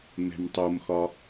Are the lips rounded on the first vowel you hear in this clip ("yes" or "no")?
no